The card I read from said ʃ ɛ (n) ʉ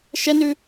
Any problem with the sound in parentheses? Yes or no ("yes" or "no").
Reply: no